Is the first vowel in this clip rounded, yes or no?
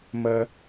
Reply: no